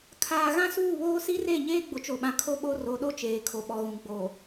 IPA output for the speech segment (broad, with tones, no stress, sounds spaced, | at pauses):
kʰ aː˨ ɣ ã˦ s uː˦˨ β oː˦ s i˦ r e˦˨ ɲ eː˦ ɡ͡b ʊ˨ t͡ʃ o˨ ɓ ã˨ kʰ o˦ ɓ o˦ r o˨˦ ɗ o˦ t͡ʃ eː˨ kʰ o˨ ɓ ɔ˨ ɣ ũ˨ ɡ͡b o˨